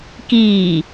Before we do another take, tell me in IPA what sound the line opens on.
k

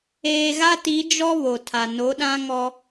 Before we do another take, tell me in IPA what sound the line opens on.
eː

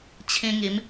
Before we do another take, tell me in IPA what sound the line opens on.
t͡ɕʰ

